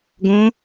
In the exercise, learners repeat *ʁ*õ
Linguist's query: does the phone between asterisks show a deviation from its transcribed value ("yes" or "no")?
yes